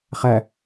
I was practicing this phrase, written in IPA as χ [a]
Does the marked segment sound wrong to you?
yes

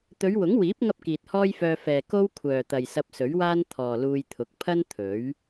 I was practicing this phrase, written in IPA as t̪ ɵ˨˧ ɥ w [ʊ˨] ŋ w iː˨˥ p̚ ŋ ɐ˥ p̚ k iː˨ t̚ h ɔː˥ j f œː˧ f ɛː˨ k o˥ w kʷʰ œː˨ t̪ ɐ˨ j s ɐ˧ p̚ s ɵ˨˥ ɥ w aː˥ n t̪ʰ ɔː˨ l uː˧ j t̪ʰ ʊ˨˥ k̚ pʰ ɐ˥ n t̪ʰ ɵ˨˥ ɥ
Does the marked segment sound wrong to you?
yes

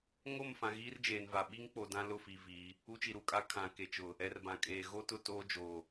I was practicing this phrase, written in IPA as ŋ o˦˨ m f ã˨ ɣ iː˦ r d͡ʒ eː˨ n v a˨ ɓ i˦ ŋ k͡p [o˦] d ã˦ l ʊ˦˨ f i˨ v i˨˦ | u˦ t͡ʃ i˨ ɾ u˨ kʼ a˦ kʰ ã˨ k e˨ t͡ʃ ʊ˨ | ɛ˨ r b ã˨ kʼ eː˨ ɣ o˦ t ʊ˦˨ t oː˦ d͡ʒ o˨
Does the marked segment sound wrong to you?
yes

